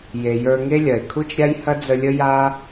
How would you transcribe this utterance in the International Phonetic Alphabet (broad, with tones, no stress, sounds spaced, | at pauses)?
j e˨ j ə˞˧ ŋ e˦ lʲ ɐ˨ e̯ kʰ u˦ t͡ʃ ɾʲ a˦ j h ɐ˦ d͡z ə˧ lʲ ə˦ j a˦